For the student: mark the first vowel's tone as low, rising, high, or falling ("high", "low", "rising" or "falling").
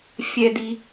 low